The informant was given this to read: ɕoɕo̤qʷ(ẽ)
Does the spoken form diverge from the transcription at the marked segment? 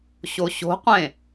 no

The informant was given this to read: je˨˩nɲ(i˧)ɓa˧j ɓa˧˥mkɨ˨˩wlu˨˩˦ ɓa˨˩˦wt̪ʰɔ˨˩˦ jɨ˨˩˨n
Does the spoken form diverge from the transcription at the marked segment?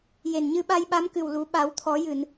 yes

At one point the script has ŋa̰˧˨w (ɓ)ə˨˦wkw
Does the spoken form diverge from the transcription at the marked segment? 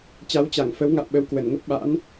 no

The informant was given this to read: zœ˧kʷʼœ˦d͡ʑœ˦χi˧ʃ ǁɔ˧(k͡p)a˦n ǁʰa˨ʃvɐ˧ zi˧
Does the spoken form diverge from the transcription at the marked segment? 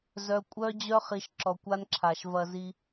yes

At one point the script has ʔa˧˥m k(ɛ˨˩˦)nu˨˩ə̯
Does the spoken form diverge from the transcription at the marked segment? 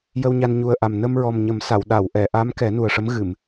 no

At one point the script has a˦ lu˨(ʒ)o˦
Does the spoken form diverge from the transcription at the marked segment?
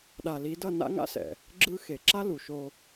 yes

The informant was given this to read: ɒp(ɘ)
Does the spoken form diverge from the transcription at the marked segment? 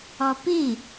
yes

